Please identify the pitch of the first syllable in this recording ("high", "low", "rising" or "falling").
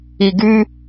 low